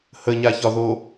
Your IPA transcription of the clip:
h ə ɲ a ç ɒ ð o

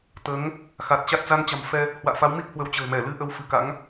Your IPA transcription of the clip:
t̪ əː˨˦ ŋ | x a˨˩ t̚ t͡ɕ a˦˥ t̚ z a˧ n t͡ɕ a̤˨˩ m f ɛ˧ | h w a̰ː˧˨ f a˨˦ w m i˦˥ p̚ h w ə˨˦ w t͡ɕ ə̤ː˨˩ m ɛ˧˩ l ɨ˧ ʔ ə˧ w f ɨ˧˩ k a̰˧˥ ŋ

